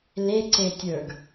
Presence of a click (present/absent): present